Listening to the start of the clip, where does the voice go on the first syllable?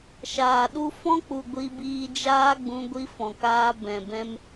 low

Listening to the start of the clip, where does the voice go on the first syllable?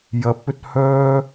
rising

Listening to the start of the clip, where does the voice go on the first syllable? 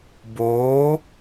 rising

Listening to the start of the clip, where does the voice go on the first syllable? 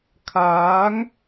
rising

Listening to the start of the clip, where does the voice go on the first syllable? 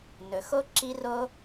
low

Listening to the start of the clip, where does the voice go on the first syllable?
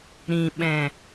low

